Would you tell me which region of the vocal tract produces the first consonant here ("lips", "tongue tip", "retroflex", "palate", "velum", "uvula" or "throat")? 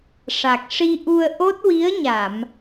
retroflex